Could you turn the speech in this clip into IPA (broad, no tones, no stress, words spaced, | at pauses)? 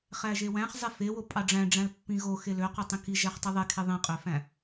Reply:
χæʒewæ̃χ zˤefewo pʼɑɖ͡ʐæ̃ɖ͡ʐæ̃l pːĩɣo xeløqy tˤĩki ʒæχtˤiðˤekʰe ðˤĩqʼøfæ̃